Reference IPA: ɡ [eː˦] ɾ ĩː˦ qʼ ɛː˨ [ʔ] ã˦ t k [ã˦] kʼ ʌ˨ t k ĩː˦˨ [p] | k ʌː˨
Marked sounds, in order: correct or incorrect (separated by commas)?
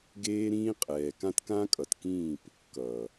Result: correct, incorrect, correct, correct